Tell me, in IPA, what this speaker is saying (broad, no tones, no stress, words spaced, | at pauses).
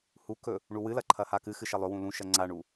hukɵ | ɳuwɨlɐ ǃʰɐhakɨxɨ ʃɐlˠɵwũ lũʃɐ ŋ͡ǀaɳu